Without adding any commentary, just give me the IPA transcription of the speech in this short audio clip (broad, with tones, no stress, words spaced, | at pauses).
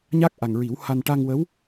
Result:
ɲa˦˥k̚ʔa˨˩ŋɹi˨˩˦wha˧n ʈa˧ŋwə˧˥w